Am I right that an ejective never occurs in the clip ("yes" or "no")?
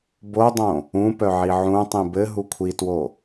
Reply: yes